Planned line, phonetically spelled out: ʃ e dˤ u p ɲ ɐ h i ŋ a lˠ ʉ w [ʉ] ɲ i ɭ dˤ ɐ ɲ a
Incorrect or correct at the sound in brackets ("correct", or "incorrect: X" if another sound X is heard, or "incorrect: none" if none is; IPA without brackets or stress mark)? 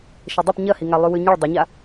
correct